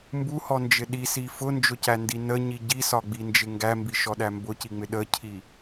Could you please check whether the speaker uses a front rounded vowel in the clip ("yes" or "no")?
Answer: no